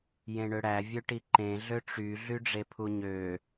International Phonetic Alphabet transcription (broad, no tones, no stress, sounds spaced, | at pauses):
j ẽ ɳ ø ɽ æ vʲ ø ʈ i ǃ ẽ ɮ ø ʈ͡ʂ y ɮ y ɖ͡ʐ e pʰ u ɲ ø